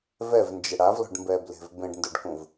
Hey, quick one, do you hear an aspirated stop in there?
no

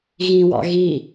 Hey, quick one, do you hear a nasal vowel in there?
yes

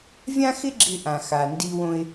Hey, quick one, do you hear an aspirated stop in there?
no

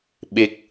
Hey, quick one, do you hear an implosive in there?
yes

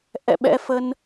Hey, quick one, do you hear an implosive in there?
yes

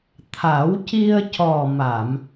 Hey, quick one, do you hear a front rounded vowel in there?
no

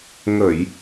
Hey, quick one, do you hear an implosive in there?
no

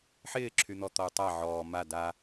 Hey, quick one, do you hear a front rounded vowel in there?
yes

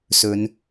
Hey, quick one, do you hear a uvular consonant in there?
no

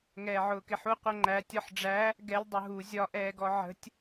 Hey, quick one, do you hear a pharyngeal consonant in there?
yes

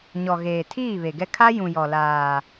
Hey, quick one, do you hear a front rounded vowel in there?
no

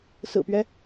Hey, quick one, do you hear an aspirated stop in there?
no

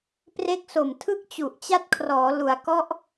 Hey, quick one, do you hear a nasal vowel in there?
no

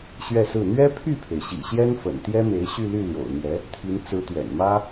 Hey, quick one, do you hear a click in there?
no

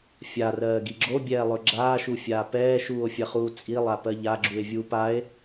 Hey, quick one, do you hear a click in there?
yes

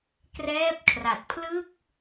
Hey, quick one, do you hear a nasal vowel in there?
no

